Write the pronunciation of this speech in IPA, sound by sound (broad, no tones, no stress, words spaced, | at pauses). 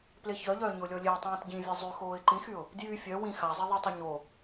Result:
pleçœʎœː ɲolʲɔlʲeʊ̯tˤĩːt ɟĩvʲe zˤyxoːɪ̯ ǃĩxyʊ̯ | djy fʲœ wĩ xazˤi ðˤətˤe ɲo